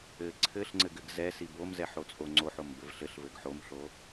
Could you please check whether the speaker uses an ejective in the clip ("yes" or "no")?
yes